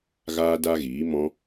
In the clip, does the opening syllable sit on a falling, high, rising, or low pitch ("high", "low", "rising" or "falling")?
high